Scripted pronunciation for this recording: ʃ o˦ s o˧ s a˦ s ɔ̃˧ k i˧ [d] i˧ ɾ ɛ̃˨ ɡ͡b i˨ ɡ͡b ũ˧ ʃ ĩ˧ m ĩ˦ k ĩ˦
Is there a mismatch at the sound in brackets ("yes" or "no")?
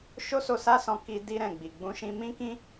no